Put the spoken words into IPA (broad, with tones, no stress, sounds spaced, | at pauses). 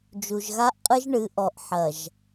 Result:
d͡ʒ u˨ ʒ ɣ a˦ ʔ qʼ ɨ˦ ʒ ɳ ɨ˨˦ ʔ ɔ˨ ʔ ħ ɐ˨ ʒ